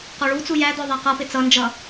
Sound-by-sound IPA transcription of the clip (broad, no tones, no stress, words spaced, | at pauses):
qɔɭut͡su jæd̪ɔ ðˤæqʌpɪ t͡sʌnd͡ʒʌ